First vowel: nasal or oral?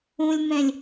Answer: nasal